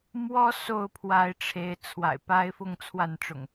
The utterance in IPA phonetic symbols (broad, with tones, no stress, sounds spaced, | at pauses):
m w ɔ˦ s o˥˨ ʊ̯ pʰ w a˨˦ ɪ̯ ʈ͡ʂʰ e˨˦ ɪ̯ t͡sʰ w a̰˨˩ ɪ̯ p a˦ ɪ̯ f ʊ˥˨ ŋ t͡sʰ w a˥˨ n ʈ͡ʂ ʊ̰˨˩ ŋ